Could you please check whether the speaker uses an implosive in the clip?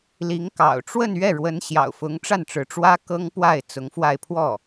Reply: no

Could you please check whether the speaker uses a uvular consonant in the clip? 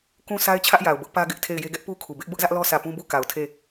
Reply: no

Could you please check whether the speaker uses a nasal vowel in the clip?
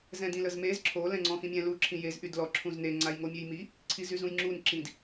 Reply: yes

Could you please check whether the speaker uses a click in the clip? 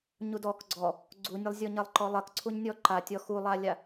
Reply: yes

